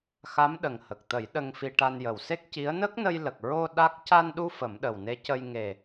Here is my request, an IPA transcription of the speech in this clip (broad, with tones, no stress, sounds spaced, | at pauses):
x a˧˥ m ɗ ə˨˩ ŋ h ə˨˩ k̚ t̪ ə˨˩˦ j ɗ ə˧ ŋ f i˧ ʈ a˧ n j ə˨˩ w s e˦˥ k̚ c i˧˥ ə̯ n ə˦˥ k̚ n ə˧ j l ə˨˩ k̚ ɹ o˧ ɗ a˦˥ k̚ c a˧ n ɗ u˧ f ə˨˩˦ m ɗ ə˨˩ w n e˧˥ c ə˧ j ŋ e˨˩